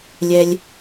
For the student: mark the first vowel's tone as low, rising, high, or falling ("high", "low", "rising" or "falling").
high